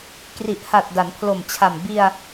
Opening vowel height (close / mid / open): close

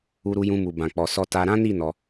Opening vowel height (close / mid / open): close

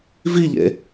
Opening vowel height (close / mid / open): close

